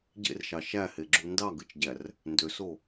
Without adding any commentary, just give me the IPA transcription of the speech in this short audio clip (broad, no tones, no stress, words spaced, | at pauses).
ɟḛrʃɑ ʃæheɡ͡ǁu ndɑɡɯt͡ʃɟær | ndøso